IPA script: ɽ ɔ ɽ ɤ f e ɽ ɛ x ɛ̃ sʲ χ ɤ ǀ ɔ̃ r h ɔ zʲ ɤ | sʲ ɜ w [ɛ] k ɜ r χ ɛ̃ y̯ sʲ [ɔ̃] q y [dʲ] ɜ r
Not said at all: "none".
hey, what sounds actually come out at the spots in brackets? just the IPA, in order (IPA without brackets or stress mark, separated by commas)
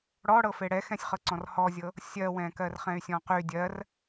ɛ̃, ɔ̃, dʲ